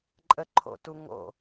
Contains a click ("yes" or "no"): yes